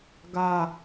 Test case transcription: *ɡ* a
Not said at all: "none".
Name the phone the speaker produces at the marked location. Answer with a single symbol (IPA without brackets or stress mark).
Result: ɡ